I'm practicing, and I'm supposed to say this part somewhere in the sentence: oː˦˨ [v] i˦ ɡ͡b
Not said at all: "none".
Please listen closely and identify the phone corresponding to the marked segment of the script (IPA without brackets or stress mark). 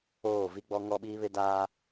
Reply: v